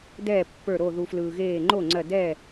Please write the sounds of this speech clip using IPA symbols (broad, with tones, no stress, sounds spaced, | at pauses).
d ɛː˥˩ pː ə˞˧˩ ɾ o˧˩ ð u˩ f l ɯː˩ ɣ eː˧˩ ŋ͡ǃ o˥˩ ŋ͡ǀ ɜ˧˩ d ɛː˥˩